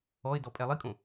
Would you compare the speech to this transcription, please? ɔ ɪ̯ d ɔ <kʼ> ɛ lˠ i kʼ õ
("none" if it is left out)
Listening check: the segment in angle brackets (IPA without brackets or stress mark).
pʼ